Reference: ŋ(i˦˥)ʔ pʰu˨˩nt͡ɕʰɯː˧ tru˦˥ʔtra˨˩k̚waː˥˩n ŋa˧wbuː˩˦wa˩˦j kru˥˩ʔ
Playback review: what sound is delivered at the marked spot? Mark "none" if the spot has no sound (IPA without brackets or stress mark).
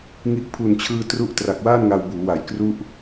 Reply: i˦˥